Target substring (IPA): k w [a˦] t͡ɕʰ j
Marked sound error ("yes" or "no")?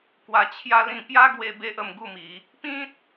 yes